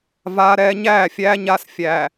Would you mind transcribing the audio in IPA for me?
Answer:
v aː˦ ɾ ɛː˦ ɲ æː˦˨ fʲ æː˦ ɲ a˦ s fʲ æ˨

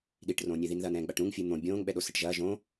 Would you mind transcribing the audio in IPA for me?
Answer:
ɗ i ʈ r õː nʲ e ð i n ð ɐː n ɛ̃ː ɡ͡b a ʈ ɾ ũ ŋ fʲ ɨ n̪ õ bʲ õː ŋ ɓ ɛ ɗ o s ɘ ʈ ʒ ɐː ʒ õ

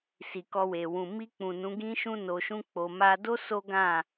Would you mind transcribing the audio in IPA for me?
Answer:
s i˨ k ɔ˧ w e˨ w ũ˨ m i˧ k͡p ũ˨ n ũ˨˦ ɡ ĩ˦ ʃ ũ˦ n o˧ ʃ ũ˦ k͡p o˧ m a˧ d o˦ s o˦ ɡ ã˦˨

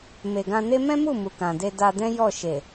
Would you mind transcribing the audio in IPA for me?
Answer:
m e˨ ɡ ã˧ n e˦ m ɛ̃˦ m u˦˨ m u˨ k ã˨ d e˧ d a˧ d ɛ̃˦ j ɔ˦˨ ʃ e˨

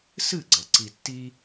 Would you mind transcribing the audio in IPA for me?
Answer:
s ɨ˥˩ ɡ͡ǀ ɐ˩ ǀ i˧ tː i˥

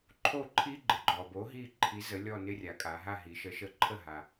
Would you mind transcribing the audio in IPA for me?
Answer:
ǃʰ o˥˩ ǃʰ i˥ ɡ͡ǃ ɪ˩˧ ɡ͡ǃ ɔ˩ b o˨˥ ɦ i˥˧ ǃʰ i˨˥ z ə˨˥ lʲ ɔ˥˧ n ɪ˥ rʲ a˩˧ kʼ a˩˧ ɦ a˥˧ ɦ i˩˧ ʃ ə˨˥ ʃ ə˨˥ ǃʰ ə˥˩ ɦ a˩

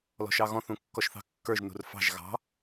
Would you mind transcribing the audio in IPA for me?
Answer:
l ɔ̤ ʃ ɑ ɣ ɔ̃ θ ũ kː ɔ ʃ θ ɑ̤ kː ə˞ ʒ n ṳ r f ɑ̤ ʒ ɣ ɑ̤

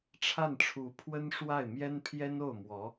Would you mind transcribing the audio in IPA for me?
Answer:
ʈ͡ʂʰ a˥˩ n ʈ͡ʂʰ u˧˥ pʰ w ə˥ n ʂ w a˥˩ ɪ̯ m j ɛ˥ n pʰ j ɛ˥ n o˥˩ ʊ̯ m w ɔ˧˥

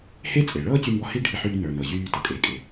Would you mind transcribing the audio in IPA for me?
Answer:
h e˥ t͡sʼ e˩ ɭ ɤː˥ t͡ɕ y˧ m b ɔ˧ h i˥ ɖʱ i˧ ħ yː˧ n ə˞˩ n ɤ˩ ʑ yː˧ t ɤ˩ kʼ eː˩ kʼ e˩

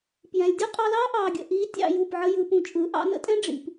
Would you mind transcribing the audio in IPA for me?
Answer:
p j ɛ̃˨ lʲ dʲ u˦ qʼ ɑ˧ l ɑː˦ ʔ ɑː˨ ɡʲ ə̰˨ ʔ iː˨˦ tʲ ɑ̰˧ j u˦˨ p ʕ ə˦ j ɯ˧ p ũ˧ t͡ʃʼ ɯ˨˦ ʔ ɑ̰˧ n ə̰˧ tʼ ɛ̃˦ ɖ͡ʐ ḭ˨ p

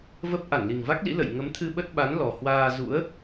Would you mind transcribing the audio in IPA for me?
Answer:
v ə˦˥ p̚ ʔ a˧˩ n l i˨˩ ŋ v a˦˥ k̚ l ḭ˧˥ l ə̰˧˨ j ŋ ə˨˦ m t̪ʰ ɨ˧ ɓ ə˦˥ t̚ ɓ a˨˦ n l ɔ˨˩ h w aː˧ z ṵ˧˥ ə̯

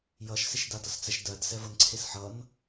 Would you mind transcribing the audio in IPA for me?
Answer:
j ʌ ʃ s e ʃ d a d ʌ s t͡s ɛ ʃ d ɜ d s ɛ v ʌ n ǀʰ e s ħ ʌ n

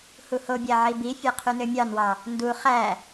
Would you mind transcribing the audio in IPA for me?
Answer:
h u h o bʲ æ ʕ i b i fʲ e qʰ y n ø mʲ ɑ n w ɑ | n d u χ æ

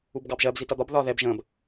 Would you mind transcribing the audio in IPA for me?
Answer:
u b ɡ ɑ b ʒ ɜ b z i t ʌ d̪ ɒ b ð ɒ ð ɛ b ʒ ə̃ː b

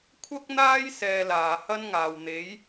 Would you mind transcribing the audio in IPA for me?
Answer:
kʷʰ ɐ˥ k̚ n̪ aː˥ j s ɛː˧ l aː˨ h ɐ˥ n ŋ aː˨ w n̪ e˨˥ j

